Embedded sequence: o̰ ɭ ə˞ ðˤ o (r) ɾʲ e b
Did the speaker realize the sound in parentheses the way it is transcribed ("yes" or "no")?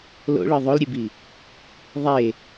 no